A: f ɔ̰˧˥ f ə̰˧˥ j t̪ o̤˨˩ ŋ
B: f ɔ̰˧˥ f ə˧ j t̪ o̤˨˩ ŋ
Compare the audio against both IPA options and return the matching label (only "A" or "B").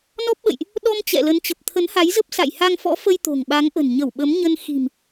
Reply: B